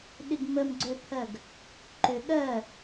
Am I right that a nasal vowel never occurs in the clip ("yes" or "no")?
yes